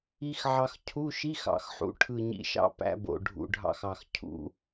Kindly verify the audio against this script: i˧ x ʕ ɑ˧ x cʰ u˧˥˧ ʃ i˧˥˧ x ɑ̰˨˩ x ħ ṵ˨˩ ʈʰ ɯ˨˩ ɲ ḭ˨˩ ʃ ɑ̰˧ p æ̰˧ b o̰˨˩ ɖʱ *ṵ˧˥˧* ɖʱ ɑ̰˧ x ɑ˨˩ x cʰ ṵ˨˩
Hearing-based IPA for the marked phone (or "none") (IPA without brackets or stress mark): ṵ˨˩